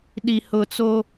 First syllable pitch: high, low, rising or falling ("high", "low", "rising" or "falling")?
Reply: low